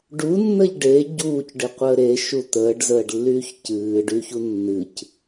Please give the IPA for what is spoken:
ɖ u nː ə ʎ ɖ e ɟ uː c ɖ ɨ qʷ əː ɾ e ʃ u t̪ əː ɖ z əː ɖ lː yː ç c ɨː ɖ y ç u nː ɨ c

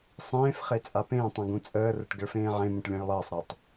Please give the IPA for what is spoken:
sˤ ẽː f χ e t͡sʼ a p ẽː tˤ ũ ɡ ũ t͡sʼ əː r ə ʈ ɡ ə ɭ f ẽː ʕ ẽ m ũ ʈ lʲ ẽ ɭ lˠ əː sˤ ɾ a tˤ

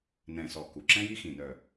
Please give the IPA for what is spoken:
n ɛ̃˨˩ s ɔ˨˩ k u˨˩ ǁ ɛ̃˦ j i˦ x ĩ˨˩ n œ˨˩

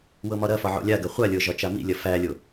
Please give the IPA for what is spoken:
w ɤ m ɒ ɾ ɐ f ɒ ʕ o̰ lʲ a ɡ ɐ χʷ a lʲ ɤ ʒ ɒ t͡ʃ a m ḭ lʲ ɐ f æ lʲ o

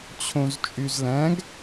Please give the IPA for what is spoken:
t͡ɕʰ õ z t͡ʃʼ y z l æ̃ ɡ

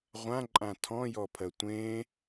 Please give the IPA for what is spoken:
ʁʷ ã ǃʼ ã tʰ ɔ̃ j ɔ pʰ ɜ tʷ ẽ

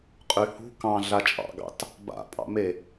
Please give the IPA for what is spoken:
qʼ y h ṳ k ɑ̃ ɮ a t͡ʃʼ ɑ̰ ɡ ɑ̰ t | b a̰ pʼ ɑ̰ m e

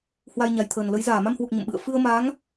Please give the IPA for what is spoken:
h w a˧ j ɲ a˨˩ j t̪ʰ əː˨˩ n l ə˨˦ j z aː˧˩ m a˧ m h w u˨˩ k̚ ɲ ə̰˧˨ m ɓ ɨ̰˧˨ ə̯ f ɨ˧ ə̯ m a˨˦ ŋ

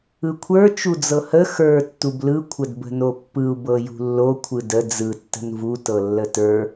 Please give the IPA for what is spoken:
ɯ kʷʰ ə˞ t͡ʃ u d͡z ɤ h ə x ə˞ tː u b l ɯ kʷʰ ə d b ə̤ n o pː ɯ u̯ b ɤ j ṳ lː o kʷʰ ɯ d ə d͡z ɯ tː ə̤ n v u t ɤ lː ə t ə˞

